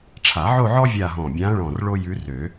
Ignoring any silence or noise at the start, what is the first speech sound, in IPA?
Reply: ʈ͡ʂʰ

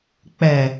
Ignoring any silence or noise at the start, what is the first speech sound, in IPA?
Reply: k͡p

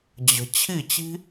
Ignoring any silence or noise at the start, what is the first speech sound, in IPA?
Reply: d͡ʑ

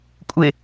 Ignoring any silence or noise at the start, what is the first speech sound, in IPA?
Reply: kʷʼ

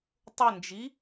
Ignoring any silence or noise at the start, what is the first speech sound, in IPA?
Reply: tˤ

